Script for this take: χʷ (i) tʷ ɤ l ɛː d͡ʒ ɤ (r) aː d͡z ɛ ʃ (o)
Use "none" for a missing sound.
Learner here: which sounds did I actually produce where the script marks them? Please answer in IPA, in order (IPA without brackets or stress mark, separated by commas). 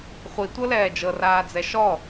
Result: i, r, ɔ